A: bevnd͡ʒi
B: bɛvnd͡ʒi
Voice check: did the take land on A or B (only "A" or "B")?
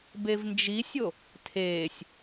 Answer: A